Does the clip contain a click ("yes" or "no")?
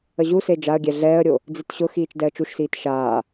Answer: no